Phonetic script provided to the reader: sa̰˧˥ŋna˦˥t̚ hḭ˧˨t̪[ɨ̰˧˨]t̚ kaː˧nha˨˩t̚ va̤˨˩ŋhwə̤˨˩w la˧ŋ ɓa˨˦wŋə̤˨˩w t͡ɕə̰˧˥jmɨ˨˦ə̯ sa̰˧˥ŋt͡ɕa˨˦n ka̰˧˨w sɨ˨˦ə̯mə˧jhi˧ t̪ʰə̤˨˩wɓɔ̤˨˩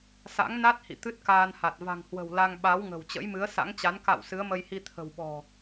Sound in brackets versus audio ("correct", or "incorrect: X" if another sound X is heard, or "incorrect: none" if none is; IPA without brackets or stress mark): incorrect: ɨ˦˥